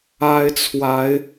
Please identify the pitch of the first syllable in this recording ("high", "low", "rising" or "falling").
high